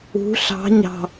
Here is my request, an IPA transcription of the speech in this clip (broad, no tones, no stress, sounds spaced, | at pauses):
ṳ ɬ ɑ̤ ɲ ɑ̤